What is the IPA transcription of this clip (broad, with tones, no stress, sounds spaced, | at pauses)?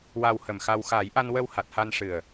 w a˧ w h ə˨˩ m x a˧ w x a˨˩˦ j ʔ a˧ n w ə˧ w h a˨˩ t̚ h a˧ n ʂ ɨ˨˩ ə̯